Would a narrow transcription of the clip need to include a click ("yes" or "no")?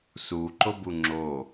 yes